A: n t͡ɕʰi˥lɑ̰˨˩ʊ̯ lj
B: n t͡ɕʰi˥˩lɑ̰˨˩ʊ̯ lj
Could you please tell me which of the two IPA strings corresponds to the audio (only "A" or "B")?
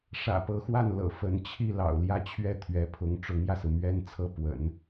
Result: B